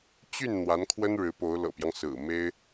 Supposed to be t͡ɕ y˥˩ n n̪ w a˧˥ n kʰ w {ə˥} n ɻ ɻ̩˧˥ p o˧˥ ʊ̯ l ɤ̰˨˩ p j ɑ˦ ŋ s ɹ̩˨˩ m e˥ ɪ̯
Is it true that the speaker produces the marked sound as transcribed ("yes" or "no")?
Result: yes